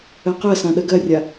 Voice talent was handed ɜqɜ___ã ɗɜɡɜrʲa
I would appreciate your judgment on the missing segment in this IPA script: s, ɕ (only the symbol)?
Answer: s